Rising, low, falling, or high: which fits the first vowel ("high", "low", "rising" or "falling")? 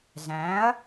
rising